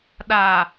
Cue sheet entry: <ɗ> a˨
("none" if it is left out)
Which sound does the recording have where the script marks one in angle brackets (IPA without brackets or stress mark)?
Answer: ɗ